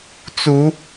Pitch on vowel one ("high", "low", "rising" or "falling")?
rising